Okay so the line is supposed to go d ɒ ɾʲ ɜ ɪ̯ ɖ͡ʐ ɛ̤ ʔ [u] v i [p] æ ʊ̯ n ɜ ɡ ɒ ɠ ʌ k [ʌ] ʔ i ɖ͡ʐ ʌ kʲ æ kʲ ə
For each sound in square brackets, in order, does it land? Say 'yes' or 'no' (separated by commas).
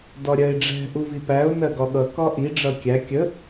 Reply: yes, yes, no